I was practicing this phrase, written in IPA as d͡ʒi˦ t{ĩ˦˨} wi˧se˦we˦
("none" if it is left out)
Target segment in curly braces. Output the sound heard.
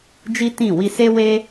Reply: ĩ˦˨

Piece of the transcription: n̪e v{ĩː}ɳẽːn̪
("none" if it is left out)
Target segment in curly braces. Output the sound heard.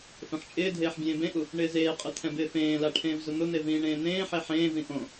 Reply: ĩː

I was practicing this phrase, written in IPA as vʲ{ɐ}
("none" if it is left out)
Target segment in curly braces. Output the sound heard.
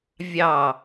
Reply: ɑ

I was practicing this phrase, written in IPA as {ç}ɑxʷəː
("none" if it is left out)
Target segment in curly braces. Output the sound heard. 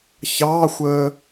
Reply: ç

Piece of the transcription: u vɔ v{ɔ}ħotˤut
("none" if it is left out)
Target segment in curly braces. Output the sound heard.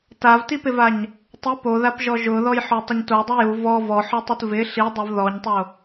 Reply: ɔ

